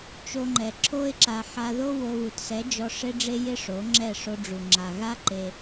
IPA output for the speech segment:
t͡ʃo˧ŋ͡ǃɛ˨ǁʰo˦ɪ̯ǁa˧ ħa˧ðo˦ wo˧βu˨tsɛ˨˦d͡ʒɔ˧ ʂe˦ɖ͡ʐe˦ jɪ˦ʂo˨˦ŋ͡ǁɛ˦˨ ʂo˧ɖ͡ʐu˨ ŋ͡ǁa˨ɣa˦ǃe˧

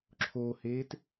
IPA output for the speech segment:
ǁʰoːheːt

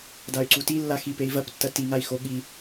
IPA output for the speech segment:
day̯ǀutilːa xipei̯vɐptːɐ tiŋai̯xo ɠi

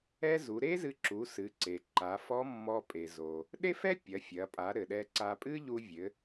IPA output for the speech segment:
ɛ˥ zu˩˧ɾe˥zɨ˧ǁu˩˧ sɨ˩˧ǀe˩ǃa˩˧ fɔ˧˥mːɔ˧pʼe˩zo˩ | ɗe˥fɛ˥ pʲɐ˩˧fʲɐ˩˧pʼa˩˧ ɾɘ˩ɗɛ˧ǀa˧pʼɨ˥ ʎu˧ vʲɘ˩˧

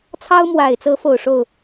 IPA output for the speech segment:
t͡sʰɑ˥ʊ̯mwa˨˩ɪ̯t͡sɤ˧˥ fo˨˩ʊ̯ʂo˥˩ʊ̯

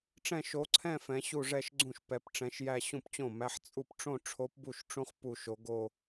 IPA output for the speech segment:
ʈ͡ʂɛ̃˥˧ʃo˧˥ǀʰɛ̃˥˧ fɛ̃˧˥ɕu˥˧ʐɛ˥˧ʃɡ͡ǀũ˥˩ʃ pɛ˧˥pʈ͡ʂɛ̃˧˥ʃjæ˥˧ ɕũ˥˩pt͡ɕõ˥˩mæ˧˥ħ t͡sʼu˥˩pʈ͡ʂõ˥˧ ʈ͡ʂʰo˧˥pbu˥˩ʃʈ͡ʂũ˧˥χ pu˥˧ʃo˧˥ ɡo˥˧

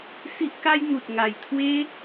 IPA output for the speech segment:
si˦ʔka˦jn̪u˨t̚ ŋa˨˩jt̪ʰwe˦

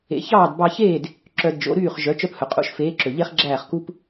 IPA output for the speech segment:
ḛ˩˥çɑː˥˩dbɑ˧çeː˥˩d | ǁœ˧dd͡ʒo̰˩˥ ɾyː˥˩χ ʒœ˩˥t͡ʃœ˧phɵ˩qʼṵ˩˥ʃ feː˩˥ǁø˩ ʎe˥χɡ͡ǁæː˥˩χ ku˧p

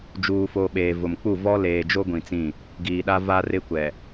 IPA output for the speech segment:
d͡ʒuː˨fo˨ ɓeː˨vʊ˨m k͡pu˦˨ vɔ˦leː˨d͡ʒo˦ ɡʷĩ˨t͡sĩ˦˨ | ɡiː˨ɗa˦ va˦rɪ˦kʷɛ˨

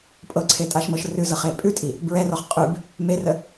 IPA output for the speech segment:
pʼɤǀʰetʼaʃmɤʃ rʉzɤχe pʼʉtʼi | bɹɛrɔχ qʼʉb | merə

